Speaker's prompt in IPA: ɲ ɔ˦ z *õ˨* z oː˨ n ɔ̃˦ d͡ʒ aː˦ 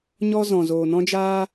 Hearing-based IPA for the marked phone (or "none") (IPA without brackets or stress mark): ɔ̃˨